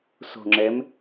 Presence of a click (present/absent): present